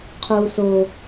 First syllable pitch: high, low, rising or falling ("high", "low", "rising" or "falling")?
high